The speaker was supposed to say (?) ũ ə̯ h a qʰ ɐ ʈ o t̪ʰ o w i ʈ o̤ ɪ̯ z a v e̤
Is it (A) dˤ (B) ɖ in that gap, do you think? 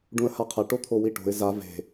B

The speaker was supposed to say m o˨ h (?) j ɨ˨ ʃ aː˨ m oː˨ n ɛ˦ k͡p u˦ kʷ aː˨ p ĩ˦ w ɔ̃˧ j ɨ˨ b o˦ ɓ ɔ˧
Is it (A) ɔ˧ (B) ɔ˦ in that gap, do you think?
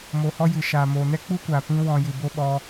A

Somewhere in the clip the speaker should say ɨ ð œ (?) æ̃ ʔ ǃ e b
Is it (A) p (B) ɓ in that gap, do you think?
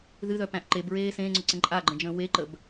A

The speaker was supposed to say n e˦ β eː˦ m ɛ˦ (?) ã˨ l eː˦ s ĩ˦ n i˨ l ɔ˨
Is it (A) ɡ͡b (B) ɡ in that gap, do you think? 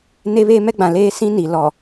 A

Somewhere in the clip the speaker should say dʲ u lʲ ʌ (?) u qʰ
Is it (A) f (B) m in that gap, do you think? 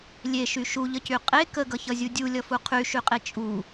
A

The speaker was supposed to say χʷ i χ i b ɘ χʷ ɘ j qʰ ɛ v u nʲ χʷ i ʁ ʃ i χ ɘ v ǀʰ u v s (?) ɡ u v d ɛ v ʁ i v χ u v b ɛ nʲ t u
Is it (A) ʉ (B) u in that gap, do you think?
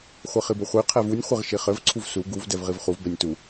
B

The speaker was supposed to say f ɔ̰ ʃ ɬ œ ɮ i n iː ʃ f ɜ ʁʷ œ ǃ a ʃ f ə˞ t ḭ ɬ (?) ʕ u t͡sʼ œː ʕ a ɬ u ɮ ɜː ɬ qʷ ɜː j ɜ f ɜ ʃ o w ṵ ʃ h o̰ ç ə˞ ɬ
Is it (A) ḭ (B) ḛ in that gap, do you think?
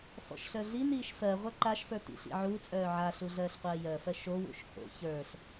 A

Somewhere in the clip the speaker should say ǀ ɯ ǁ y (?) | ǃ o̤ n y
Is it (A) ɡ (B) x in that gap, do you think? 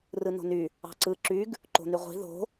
A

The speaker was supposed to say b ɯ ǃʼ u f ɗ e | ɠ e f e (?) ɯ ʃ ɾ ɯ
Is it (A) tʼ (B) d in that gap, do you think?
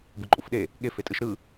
A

